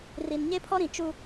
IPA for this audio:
r i˨ n ɲ e˦ pʰ ɔ˦ ɾ ĩ˨ t͡ʃ u˦

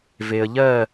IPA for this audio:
v e˧ ə̯ ʎ ɜ˥˧

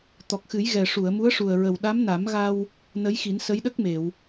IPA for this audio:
t̪ ɔ˨˩ k̚ x ɨ˨˩˦ j ɣ ɛ˨˩ ʂ u˨˩˨ ə̯ m u˧˥ ə̯ ʂ u˨˩ ə̯ ɹ ə˨˩ w ɗ a˧˥ m n a˨˩˦ m ɣ a˧ w | n ə˧˥ j x i˨˩˦ n s ə˧˥ j ɗ ə˦˥ k̚ m e˨˩˨ w

